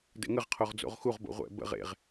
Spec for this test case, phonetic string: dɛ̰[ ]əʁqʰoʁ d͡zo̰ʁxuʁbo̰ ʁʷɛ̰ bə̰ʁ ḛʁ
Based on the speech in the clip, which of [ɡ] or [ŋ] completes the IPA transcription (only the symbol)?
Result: ŋ